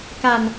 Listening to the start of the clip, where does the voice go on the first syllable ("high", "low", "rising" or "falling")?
low